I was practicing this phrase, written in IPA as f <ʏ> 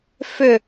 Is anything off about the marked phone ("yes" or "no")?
no